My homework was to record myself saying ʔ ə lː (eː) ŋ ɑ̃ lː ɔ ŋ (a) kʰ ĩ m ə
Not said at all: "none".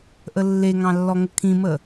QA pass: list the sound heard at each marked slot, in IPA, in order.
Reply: e, ə

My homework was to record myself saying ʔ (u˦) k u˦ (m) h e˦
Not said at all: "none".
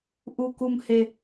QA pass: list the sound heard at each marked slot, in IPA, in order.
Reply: u˦, m

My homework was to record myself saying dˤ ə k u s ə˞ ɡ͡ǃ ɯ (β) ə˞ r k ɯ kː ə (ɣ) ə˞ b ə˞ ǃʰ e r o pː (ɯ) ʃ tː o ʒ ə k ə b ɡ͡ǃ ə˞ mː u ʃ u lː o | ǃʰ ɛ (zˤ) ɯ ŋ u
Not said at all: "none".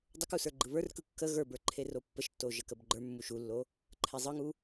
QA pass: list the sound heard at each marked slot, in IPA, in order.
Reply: β, ɣ, ə, zˤ

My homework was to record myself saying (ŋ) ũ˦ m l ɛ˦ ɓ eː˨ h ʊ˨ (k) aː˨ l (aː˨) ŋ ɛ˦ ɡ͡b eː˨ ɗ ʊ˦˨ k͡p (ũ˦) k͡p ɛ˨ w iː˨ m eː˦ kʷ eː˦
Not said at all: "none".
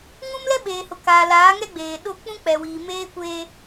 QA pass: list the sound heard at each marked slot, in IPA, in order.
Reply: ŋ, k, aː˨˦, ũ˦

